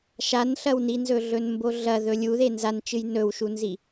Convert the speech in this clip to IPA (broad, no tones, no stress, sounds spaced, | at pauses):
ʃ a n ɬ ɐ w n i n z ɵ ɮ ɵ n m b o ɮ ɐ ð ɵ lʲ u ð e n z a n t͡ʃ ɨ j n ɵ w ʃ u n z i